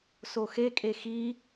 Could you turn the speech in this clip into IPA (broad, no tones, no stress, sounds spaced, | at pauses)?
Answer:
s o x e kʼ e x i